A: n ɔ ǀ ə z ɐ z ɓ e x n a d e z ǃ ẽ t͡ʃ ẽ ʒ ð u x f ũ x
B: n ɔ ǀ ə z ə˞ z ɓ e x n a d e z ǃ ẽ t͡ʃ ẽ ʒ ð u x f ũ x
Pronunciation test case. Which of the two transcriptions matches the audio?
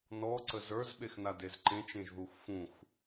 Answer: B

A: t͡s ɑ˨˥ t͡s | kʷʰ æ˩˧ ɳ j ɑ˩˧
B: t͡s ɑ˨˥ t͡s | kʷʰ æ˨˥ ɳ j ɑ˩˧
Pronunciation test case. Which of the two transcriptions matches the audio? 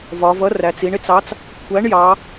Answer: B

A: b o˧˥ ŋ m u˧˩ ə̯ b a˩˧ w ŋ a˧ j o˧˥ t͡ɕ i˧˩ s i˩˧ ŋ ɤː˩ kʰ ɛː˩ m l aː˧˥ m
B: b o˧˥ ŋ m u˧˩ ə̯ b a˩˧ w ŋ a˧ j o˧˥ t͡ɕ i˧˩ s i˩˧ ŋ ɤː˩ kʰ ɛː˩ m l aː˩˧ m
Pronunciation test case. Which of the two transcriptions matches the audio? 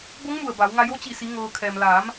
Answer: B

